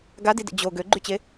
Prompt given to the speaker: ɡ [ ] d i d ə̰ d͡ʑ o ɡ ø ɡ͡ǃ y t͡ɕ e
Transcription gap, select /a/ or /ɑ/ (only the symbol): a